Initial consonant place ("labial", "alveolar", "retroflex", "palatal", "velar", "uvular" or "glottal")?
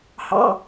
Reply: glottal